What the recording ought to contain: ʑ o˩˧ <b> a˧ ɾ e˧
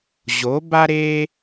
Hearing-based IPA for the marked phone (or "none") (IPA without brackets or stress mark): b